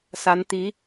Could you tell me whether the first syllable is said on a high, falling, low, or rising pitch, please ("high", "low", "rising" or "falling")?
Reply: rising